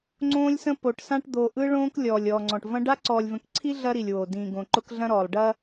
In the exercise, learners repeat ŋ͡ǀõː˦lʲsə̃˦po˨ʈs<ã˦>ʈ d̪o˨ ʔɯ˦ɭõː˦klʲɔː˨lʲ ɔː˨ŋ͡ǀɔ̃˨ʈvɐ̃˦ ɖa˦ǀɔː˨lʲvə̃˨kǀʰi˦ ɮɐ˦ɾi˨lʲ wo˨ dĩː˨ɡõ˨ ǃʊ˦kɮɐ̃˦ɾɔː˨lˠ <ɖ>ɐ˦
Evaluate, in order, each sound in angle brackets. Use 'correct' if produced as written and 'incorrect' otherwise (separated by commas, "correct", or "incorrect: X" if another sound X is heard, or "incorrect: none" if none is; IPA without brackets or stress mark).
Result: correct, correct